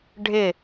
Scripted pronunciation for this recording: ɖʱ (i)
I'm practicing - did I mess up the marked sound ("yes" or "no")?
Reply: yes